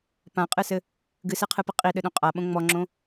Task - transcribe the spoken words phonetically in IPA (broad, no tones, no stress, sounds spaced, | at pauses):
p ã qʼ ɨ s ɘ | ɡ ɨ s e qʰ ɨ p ɨ qʼ i ɗ ɘ ɗ õ qʼ a ɓ õ ŋ͡m ɔ ŋ͡ǁ õ